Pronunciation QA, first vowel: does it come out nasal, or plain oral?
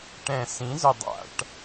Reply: nasal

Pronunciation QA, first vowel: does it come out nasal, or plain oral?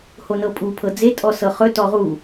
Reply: oral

